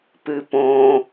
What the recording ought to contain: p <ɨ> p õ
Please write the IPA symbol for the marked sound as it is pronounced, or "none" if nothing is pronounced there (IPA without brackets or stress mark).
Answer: ɨ